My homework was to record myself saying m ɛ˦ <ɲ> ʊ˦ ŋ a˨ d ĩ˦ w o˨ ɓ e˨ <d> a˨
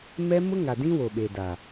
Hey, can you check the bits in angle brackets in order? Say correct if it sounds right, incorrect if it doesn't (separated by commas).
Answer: incorrect, correct